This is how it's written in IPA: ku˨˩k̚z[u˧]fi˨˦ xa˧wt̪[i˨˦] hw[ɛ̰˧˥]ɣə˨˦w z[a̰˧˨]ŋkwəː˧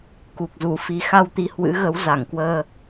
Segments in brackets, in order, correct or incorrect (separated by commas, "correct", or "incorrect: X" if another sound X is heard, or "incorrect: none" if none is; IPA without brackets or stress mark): incorrect: u˧˩, correct, incorrect: ɨ̰˧˥, incorrect: a˧˩